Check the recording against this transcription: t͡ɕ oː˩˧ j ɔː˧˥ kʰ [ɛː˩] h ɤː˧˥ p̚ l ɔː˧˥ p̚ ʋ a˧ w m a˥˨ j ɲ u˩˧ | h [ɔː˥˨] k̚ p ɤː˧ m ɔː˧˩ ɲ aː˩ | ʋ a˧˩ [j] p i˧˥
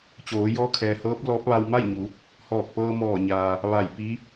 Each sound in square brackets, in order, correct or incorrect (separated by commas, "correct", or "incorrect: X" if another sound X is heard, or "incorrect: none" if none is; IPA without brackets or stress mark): correct, incorrect: ɔː˧˩, correct